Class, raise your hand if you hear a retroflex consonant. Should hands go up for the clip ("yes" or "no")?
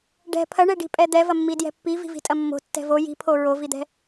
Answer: yes